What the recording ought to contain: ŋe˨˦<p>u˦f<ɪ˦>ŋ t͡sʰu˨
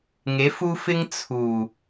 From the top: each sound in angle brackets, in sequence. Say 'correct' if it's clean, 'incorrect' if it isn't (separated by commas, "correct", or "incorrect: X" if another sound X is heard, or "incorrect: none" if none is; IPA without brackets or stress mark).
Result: incorrect: f, correct